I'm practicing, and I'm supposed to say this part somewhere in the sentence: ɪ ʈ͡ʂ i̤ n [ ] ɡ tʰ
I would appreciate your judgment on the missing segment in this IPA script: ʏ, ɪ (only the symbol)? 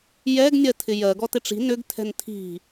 ʏ